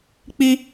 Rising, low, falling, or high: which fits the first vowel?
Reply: high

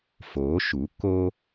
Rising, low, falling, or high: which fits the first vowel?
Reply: rising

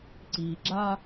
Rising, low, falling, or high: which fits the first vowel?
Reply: low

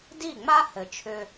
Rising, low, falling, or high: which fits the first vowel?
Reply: falling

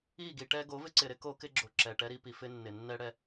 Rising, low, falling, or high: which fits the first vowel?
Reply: falling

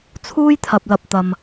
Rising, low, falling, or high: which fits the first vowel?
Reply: high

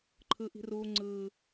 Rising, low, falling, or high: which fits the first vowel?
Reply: high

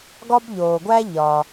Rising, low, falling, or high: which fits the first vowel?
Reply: high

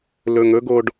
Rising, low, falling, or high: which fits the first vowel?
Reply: low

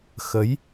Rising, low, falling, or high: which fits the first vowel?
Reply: rising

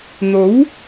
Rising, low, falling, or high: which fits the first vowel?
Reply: rising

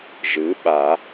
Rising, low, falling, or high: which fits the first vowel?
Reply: rising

